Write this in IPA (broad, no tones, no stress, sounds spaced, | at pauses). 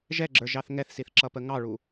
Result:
ʒ ɛ ɡ͡ǁ ə˞ ʒ ɑ θ ŋ ɛ θ s i θ ǁ ʌ p ə ŋ ɑ ɭ u